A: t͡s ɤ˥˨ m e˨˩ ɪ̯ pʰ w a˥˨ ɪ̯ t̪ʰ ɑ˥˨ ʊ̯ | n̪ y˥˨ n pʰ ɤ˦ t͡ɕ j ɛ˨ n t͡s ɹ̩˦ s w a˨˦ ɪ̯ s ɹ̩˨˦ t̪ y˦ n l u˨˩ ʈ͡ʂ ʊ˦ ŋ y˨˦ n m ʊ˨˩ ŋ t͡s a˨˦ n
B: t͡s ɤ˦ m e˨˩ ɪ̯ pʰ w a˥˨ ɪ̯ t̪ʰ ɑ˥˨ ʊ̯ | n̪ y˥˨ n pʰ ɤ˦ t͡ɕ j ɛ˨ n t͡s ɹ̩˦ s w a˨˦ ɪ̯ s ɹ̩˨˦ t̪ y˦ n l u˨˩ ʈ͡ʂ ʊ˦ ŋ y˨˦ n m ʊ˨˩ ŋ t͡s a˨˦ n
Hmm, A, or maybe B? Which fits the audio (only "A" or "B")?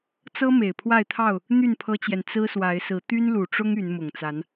B